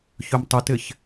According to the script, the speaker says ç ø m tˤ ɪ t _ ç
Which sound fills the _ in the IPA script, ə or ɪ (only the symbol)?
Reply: ɪ